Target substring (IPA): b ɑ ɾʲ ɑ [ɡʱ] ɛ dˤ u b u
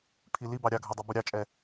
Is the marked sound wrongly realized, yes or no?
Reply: no